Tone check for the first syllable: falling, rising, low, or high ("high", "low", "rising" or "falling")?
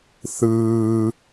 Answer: low